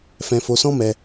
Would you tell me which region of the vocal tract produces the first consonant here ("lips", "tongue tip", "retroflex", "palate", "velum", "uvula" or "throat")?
lips